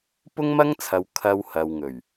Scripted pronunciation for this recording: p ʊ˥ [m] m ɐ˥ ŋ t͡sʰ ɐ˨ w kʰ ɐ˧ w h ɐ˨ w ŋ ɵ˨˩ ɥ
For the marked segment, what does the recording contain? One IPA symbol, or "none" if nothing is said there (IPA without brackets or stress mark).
ŋ